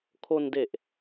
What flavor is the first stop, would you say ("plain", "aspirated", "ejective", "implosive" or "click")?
aspirated